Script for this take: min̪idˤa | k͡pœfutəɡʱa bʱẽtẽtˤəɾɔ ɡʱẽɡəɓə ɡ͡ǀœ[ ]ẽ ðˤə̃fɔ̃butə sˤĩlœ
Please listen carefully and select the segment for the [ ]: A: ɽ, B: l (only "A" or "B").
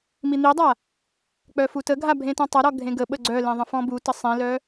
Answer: B